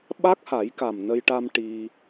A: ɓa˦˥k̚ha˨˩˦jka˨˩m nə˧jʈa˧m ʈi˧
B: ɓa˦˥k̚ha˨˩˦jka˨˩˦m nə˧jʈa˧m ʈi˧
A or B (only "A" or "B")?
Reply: A